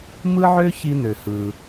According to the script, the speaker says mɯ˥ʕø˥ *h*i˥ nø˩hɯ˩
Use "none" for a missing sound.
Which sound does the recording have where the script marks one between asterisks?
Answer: ç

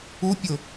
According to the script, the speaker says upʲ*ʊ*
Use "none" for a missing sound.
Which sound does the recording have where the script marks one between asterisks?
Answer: ʊ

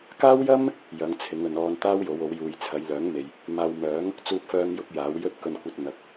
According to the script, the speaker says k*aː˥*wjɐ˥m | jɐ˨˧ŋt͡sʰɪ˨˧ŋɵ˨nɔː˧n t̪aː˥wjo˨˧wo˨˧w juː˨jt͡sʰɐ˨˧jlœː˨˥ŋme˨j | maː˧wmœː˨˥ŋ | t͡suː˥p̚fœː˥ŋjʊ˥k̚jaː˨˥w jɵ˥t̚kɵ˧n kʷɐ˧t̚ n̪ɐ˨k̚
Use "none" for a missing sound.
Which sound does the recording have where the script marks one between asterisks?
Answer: aː˥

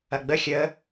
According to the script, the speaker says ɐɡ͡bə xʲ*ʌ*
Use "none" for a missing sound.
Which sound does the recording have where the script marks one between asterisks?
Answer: ə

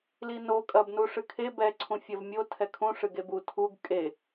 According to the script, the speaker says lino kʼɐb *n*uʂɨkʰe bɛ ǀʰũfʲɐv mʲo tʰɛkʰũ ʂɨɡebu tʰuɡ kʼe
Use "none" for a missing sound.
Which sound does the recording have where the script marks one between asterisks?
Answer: n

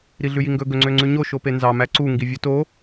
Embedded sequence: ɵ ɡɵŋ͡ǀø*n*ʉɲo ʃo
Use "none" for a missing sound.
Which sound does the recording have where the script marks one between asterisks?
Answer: ŋ͡ǀ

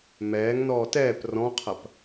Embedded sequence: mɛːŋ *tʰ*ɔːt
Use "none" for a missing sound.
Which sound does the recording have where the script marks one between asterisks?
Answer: n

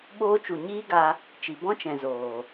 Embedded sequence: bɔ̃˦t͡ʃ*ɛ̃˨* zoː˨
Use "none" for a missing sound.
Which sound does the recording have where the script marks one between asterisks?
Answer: ɛ̃˨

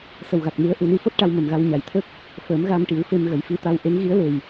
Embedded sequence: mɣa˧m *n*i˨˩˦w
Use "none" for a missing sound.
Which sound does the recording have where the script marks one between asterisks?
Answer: ʈ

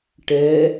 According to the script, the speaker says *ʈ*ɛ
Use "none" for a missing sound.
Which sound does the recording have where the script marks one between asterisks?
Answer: ʈ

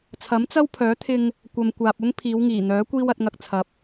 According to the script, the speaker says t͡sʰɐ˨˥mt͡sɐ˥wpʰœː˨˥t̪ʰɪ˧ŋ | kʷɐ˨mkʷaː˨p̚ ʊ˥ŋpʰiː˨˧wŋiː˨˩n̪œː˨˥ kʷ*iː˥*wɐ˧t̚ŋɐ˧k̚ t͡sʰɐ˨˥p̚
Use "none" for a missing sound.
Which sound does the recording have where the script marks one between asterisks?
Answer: iː˥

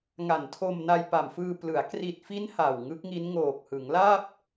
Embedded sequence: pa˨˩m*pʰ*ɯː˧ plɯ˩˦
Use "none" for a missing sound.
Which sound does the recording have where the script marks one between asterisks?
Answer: f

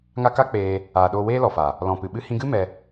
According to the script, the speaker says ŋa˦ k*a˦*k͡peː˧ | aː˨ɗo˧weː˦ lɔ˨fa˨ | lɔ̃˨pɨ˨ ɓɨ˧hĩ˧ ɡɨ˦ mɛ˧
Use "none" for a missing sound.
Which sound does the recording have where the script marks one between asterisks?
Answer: a˦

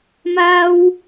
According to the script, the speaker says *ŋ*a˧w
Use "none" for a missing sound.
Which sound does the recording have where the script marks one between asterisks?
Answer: m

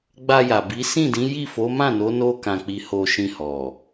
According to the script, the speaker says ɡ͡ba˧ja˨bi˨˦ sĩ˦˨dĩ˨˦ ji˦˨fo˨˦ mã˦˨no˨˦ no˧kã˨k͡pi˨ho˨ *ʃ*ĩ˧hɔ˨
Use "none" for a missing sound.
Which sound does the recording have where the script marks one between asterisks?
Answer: ʃ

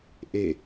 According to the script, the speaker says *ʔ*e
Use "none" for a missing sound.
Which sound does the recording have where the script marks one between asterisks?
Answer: ʔ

